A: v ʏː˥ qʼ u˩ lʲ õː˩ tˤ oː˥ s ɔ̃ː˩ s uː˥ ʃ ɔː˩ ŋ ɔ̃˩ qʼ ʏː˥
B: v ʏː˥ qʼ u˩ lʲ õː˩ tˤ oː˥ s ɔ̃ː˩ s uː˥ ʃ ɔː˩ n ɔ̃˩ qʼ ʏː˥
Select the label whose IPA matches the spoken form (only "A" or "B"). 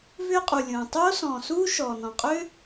B